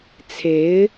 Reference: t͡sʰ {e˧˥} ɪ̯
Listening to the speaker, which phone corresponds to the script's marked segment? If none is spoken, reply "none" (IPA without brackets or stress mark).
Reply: e˧˥